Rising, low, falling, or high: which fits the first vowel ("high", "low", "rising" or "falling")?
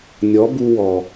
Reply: rising